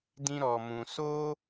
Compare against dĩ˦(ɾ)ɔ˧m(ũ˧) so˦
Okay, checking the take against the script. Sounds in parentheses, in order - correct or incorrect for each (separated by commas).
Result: correct, correct